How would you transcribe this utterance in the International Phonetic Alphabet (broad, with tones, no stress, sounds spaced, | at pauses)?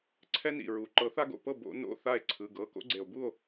ǀʰ ɛ˦ n ḭ˩ ɹ u˩ ǃ ɤ˨˩˦ θ a˦ ɡ o̰˩˧˩ p ɤ˥˨ b o̰˨˩˦ n o̰˩˧˩ θ a˥˨ e̯ ǀʰ ɯ˩˧˩ ɡ ɤ˩˧˩ k o̰˦ ɡ͡ǀ e˩ o̯ b u˥˨ o̯